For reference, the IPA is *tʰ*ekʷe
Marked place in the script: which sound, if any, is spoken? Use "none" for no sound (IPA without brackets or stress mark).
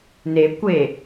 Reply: n